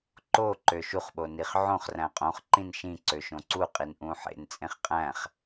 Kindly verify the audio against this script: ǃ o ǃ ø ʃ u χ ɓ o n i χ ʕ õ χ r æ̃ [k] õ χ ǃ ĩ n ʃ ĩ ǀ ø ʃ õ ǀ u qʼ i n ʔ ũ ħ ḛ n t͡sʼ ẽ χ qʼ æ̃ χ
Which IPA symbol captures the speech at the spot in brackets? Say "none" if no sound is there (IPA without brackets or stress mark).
qʼ